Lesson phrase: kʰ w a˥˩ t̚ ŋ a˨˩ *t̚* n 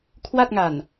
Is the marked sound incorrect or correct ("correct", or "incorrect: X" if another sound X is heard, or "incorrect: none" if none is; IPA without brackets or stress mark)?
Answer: incorrect: none